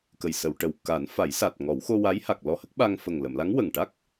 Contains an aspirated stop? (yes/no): no